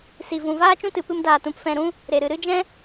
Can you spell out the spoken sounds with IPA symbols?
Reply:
si˨vũ˨ vaː˦t͡ʃũ˦tɨ˨ pɨ˦mdaː˧tũ˧p fɛ̃˧ɾũ˦ | ɾe˨ɾɨ˨ɾɨ˦d͡ʒɛ̃˦

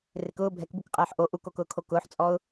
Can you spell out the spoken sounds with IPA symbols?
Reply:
rɪkʊː bʱɛkbukqʼɛːħ ʔo ʔukokʊːkʰo kʊːħt͡sʼɔʊ̯

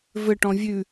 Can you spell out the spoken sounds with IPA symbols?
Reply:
vɘʈɔ̃ vʲʉ

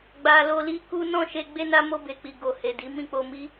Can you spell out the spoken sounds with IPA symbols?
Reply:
ɡ͡ba˨lo˧li˦ku˦ nɔ̃˦˨ʃe˧ ɡ͡be˧na˧mo˧ be˨k͡pi˨ ɡo˨he˨di˨˦ mĩ˦˨k͡po˧mi˦

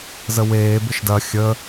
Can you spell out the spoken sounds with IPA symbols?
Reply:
zəweː bɪʃdɐ xʲə

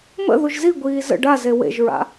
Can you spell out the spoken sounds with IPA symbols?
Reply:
mə̰ ðuʒziɡʷiː zə̰ ɖaze wḛʒɹa̰

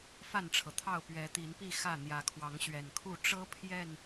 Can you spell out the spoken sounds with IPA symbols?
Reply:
fa˥˨nʈ͡ʂʰɤ˩t̪ʰɑ˥˨ʊ̯ pɥɛ˨˦t̪i˨˦npi˥˨ xä˥˨ n̪jä˨˦kʰwɑ˨˦ŋ ɕɥɛ˨˩nkʰu˥˨ ʈ͡ʂɤ˦ pʰjɛ˥˨n

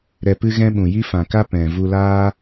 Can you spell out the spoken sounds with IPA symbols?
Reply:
ɾɛ˧pɨ˦ ɣɛ̃˦ɓũ˨ji˦ fã˨ka˦ pɛ̃˨ vu˧laː˦

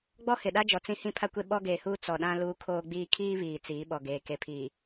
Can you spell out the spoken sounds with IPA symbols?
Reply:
ɡ͡bɔ˦hɪ˨ɗa˦d͡ʒɔ˨ t͡sĩ˦hĩ˦pʰa˦kʷe˦ ɓɔ˦ɡeː˨huː˦ t͡sɔ˨ɗã˦ luː˦kʰoː˦ɡ͡biː˦ kʰiː˦ βiː˨ t͡siː˨˦ɓɔ˨ɡeː˨ ke˨pʰiː˨

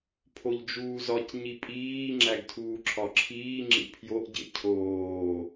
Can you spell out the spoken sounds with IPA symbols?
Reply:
pʰoʎd͡ʒuːzɒc ɲipʼiː ŋ͡ǁæɡtʰuːǁʰɒǁʰiː ŋ͡ǁḭpʰjoʔɟḛ cʰoː

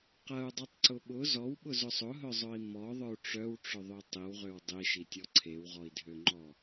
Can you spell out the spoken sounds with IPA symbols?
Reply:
qɐu̯dˤetˤǀʊ ɓʊ zɔwɓʊzʊ sˤʊɦœzˤœi̯ mɔðˤœu̯ ʈ͡ʂœwʈ͡ʂʊðˤø tˤiwʁøw dˤiʃitʲɔ ǀʰewʁɔi̯dʱøŋ͡ǃɔ

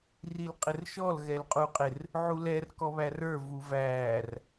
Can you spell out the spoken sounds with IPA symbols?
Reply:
rilqʼɪrʃɔl ɣɛlqʼuqʼɪr | ʕulɛr kɔβærə˞ vuvæːr

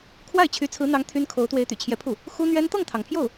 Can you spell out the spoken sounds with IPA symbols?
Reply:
kʰwa˥˩ɪ̯t͡ɕʰy˧˥t͡sʰɹ̩˧˥n̪ɑ˧˥ŋ t̪ʰy˥nkʰo˧˥ʊ̯ t̪we˧˥ɪ̯t̪y̰˨˩t͡ɕʰjɛ˧˥pʰu˥˩ | xu˥n̪ɥɛ˥n t̪ɤ˥˩ŋt̪ʰɑ˩ŋpʰjo˥˩ʊ̯

